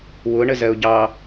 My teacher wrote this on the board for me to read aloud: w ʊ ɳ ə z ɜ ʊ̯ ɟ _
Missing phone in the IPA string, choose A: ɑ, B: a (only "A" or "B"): A